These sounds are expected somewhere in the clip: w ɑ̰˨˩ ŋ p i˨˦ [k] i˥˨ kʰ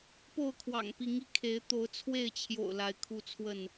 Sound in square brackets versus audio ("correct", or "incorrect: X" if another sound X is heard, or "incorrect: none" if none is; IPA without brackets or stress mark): incorrect: ŋ